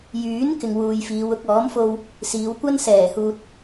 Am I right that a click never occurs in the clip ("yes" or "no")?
yes